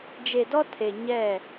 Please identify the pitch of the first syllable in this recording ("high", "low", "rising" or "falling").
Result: low